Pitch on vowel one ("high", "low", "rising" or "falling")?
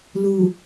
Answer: low